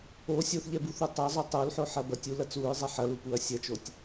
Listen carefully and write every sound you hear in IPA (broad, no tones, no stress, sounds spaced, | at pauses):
o sʲ o θ ʎ ɛ b u θ u tˤ ɐ zˤ o tˤ o l ħ o ħ ɐ b ɐ tʲ u l ɐ t͡s u ɹ zˤ ɐ ħ ɐ l u p u ɐ̯ sʲ ɐ t͡ʃ o tʲ